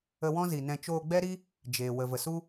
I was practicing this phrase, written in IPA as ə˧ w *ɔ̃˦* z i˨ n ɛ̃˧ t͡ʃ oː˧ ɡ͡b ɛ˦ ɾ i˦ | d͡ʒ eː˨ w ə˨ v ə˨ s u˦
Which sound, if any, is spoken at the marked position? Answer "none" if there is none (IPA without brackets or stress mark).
ɔ̃˦